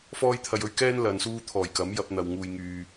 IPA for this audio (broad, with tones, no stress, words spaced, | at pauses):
fɔː˥jt̪ʰɐ˧jɵ˥ɥ kɛː˥n lɐ˨nsuː˧t̪ʰɔː˨˩j kɐ˨˥mjɐ˧p̚n̪ɐ˨w ŋuː˨jŋyː˨